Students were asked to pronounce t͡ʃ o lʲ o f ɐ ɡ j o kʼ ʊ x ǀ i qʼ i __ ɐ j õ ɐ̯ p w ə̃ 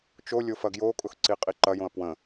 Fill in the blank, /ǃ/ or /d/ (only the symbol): ǃ